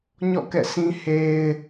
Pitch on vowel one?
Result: falling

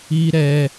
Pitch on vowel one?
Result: high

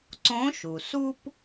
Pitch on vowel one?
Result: rising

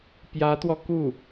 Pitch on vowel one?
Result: rising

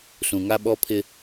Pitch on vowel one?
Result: low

